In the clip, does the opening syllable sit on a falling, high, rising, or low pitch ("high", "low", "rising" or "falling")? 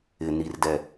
low